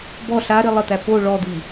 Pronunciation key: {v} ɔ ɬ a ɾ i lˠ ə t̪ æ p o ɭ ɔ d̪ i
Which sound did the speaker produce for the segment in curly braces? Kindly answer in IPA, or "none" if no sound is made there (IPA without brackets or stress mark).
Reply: b